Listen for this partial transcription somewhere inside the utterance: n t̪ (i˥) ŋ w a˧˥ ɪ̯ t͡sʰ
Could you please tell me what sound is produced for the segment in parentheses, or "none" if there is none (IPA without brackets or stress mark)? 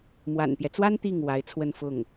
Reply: i˥˩